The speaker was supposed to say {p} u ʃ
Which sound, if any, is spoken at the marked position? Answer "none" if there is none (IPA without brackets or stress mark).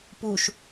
p